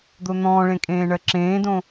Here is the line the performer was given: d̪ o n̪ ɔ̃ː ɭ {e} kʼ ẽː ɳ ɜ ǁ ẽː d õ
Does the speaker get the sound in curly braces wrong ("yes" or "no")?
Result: yes